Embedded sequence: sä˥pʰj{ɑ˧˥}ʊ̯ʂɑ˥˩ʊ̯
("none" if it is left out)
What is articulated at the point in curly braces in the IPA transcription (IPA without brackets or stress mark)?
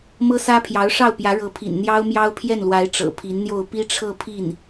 ɑ˧˥